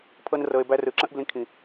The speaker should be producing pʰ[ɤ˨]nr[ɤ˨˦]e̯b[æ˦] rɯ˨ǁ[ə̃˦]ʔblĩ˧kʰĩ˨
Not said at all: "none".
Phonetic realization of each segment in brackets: ɤ˦, ɤ˧, æ˦, ə̃˦

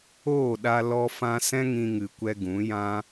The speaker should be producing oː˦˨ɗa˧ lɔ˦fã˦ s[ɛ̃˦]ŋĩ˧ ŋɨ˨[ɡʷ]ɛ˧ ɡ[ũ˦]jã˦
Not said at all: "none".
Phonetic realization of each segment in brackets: ɛ̃˦, kʷ, ũ˨˦

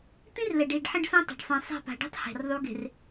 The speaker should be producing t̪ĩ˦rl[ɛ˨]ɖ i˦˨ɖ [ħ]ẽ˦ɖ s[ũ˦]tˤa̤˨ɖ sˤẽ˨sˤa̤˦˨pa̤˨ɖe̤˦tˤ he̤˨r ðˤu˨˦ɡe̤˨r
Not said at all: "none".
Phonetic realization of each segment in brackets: ɛ˨, ħ, õ˦

